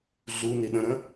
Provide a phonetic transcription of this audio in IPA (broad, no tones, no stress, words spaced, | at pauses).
ɮuni ɗə̃ɾə̃